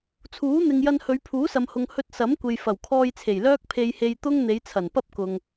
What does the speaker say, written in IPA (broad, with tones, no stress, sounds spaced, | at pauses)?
t͡sʰ uː˨˥ n̪ ɪ˨ ŋ j ɐ˧ n h ɵ˨˧ ɥ pʰ uː˨˥ s ɐ˨ m h ʊ˨ ŋ h ɵ˧ t̚ s ɐ˨˥ m kʷ e˨ j f ɐ˨˩ w kʰ ɔː˧ j t͡sʰ e˨˩ j l œː˥ k̚ pʰ e˧ j h e˧ j t̪ ʊ˥ ŋ n̪ e˨˧ j t͡sʰ ɐ˨˩ n p ɐ˥ p̚ k ʊ˨ ŋ